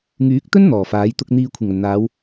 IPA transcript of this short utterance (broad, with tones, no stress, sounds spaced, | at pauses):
ŋ yː˨˥ k̚ t̪ ɵ˥ n n̪ ɔː˨˩ f aː˨˥ j t̪ ʊ˨ k̚ n̪ iː˨ kʷʰ ɪ˨˩ ŋ ɐ˨˩ n n̪ aː˨˧ w